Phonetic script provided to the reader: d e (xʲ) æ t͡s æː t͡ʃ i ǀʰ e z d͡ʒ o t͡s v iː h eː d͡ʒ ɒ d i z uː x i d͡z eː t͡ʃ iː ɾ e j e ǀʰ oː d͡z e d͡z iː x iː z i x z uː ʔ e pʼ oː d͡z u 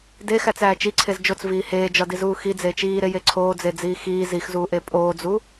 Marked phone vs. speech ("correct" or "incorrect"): incorrect